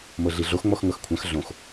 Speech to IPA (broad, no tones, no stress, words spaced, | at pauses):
mɤɮiɮox ŋ͡mɔxŋɤxkʷʰãx ɮõx